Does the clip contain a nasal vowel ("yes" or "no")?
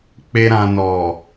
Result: yes